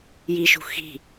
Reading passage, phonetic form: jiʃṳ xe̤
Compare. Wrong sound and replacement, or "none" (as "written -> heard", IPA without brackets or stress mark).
e̤ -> i̤